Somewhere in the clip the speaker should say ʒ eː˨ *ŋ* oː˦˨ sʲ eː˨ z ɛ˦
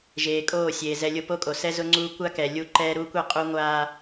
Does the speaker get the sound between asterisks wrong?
yes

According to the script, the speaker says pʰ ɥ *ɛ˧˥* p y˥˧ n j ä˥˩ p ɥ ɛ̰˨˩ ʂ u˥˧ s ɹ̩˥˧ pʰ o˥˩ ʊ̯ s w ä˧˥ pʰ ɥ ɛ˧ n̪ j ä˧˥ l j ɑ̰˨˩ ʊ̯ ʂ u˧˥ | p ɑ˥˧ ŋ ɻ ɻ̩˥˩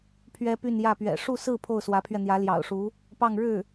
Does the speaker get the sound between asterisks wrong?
yes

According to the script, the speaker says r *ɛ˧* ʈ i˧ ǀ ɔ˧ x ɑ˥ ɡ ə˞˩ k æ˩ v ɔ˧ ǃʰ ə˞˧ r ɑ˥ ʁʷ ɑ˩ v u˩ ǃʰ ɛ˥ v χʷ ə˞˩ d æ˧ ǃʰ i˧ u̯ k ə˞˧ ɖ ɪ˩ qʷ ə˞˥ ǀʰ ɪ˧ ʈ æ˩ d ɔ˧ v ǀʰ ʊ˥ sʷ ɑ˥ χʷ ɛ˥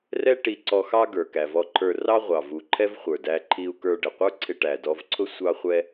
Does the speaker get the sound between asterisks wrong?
yes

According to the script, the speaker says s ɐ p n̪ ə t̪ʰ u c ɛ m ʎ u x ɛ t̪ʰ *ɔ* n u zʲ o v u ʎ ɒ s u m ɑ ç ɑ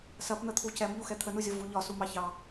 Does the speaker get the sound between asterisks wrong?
yes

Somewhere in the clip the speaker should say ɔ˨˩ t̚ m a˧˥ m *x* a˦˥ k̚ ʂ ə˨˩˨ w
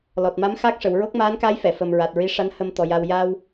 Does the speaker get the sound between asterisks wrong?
no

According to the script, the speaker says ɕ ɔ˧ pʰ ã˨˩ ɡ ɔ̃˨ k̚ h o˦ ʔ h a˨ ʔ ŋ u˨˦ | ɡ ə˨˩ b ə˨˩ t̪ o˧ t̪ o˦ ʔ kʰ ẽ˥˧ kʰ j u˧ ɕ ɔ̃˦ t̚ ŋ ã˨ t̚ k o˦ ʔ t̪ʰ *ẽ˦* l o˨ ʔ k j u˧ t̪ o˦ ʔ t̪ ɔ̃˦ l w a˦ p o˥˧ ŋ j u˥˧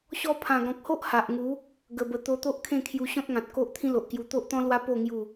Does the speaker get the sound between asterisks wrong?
yes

